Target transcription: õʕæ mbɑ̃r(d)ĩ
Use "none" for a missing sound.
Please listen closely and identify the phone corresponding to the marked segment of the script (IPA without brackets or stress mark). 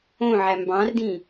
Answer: d